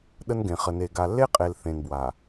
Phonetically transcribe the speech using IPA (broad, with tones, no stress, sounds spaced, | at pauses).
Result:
ɗ ə˦ n ɡ ẽ˨ χ ə˨ n e˨ ɡ a˨ lː e˦ qʼ e˨ l θ ẽ˨ n b w a˨